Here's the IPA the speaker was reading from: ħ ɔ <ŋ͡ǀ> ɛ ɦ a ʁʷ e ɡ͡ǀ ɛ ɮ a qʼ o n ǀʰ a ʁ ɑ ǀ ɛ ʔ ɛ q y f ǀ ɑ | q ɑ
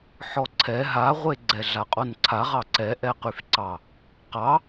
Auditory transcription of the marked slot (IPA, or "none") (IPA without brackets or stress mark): ǀʰ